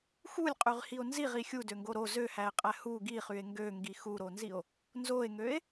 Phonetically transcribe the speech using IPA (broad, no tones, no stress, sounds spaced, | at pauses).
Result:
x u lʲ qʼ y ʁ h i o̯ n z i ʁ i xʲ u d ø ŋ ɡ o ɾ o z ø h æ e̯ qʼ æ h u ɡ i χ y e̯ ŋ ɡ ø ŋ ɡ i x u ɾ o n z i o̯ | n z o e̯ ŋ ø e̯